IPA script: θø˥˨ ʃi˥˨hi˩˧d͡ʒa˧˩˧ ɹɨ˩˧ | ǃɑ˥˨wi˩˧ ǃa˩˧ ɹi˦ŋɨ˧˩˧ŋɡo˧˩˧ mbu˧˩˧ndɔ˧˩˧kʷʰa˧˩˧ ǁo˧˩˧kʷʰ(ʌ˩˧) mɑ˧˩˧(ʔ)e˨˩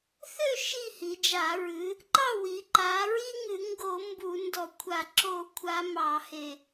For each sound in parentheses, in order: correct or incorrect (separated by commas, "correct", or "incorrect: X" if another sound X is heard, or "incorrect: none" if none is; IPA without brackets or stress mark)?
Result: incorrect: a˩˧, incorrect: h